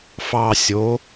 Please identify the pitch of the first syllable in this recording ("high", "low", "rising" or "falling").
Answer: low